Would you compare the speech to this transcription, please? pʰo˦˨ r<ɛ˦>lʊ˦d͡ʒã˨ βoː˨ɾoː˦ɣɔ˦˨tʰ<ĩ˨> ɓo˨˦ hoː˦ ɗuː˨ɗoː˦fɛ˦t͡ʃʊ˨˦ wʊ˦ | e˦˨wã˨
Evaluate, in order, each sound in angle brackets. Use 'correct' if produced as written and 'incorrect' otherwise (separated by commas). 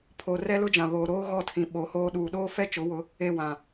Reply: correct, correct